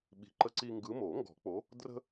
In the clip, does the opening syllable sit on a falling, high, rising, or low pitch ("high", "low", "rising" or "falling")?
low